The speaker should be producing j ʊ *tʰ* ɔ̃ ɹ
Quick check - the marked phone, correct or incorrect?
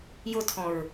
correct